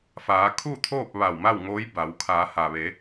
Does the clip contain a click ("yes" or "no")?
no